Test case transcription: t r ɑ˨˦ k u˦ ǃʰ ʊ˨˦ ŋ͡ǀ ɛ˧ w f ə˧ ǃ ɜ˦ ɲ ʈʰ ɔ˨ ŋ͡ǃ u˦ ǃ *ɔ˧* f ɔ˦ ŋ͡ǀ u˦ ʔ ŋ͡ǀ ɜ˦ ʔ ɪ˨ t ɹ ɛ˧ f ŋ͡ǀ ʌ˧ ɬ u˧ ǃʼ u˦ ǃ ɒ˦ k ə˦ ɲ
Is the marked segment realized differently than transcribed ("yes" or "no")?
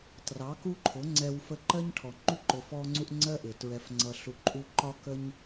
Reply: yes